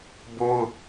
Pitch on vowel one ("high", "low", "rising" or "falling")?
high